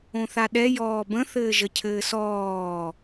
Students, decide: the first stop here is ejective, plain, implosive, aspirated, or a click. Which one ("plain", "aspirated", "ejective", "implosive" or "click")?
implosive